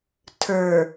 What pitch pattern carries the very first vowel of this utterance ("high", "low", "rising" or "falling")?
low